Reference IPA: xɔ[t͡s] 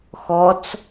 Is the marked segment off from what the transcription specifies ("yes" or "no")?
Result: no